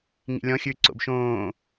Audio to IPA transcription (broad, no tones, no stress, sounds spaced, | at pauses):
ŋ ḭ lʲ ɔ̃ xʲ ʉː ǀ o̰ b ʃ õː